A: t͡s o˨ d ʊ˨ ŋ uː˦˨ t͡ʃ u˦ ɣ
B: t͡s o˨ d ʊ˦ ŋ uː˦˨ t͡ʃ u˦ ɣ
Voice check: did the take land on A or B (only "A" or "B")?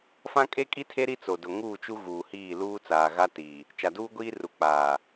A